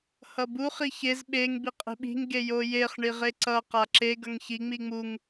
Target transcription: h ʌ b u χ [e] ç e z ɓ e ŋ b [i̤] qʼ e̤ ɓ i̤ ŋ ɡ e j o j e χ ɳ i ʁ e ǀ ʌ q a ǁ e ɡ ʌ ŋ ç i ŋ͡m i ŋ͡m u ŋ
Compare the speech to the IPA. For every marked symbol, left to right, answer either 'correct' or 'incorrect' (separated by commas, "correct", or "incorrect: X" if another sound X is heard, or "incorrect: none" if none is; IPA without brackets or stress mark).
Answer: incorrect: i, incorrect: i